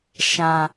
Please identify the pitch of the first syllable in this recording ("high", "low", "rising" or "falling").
low